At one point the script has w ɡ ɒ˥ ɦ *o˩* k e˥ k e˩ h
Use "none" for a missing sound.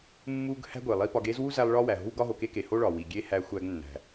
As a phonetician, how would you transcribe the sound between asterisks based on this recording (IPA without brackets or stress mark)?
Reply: o˩